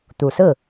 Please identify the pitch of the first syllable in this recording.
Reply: low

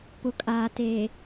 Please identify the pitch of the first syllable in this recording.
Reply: low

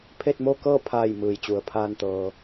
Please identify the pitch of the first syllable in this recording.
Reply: falling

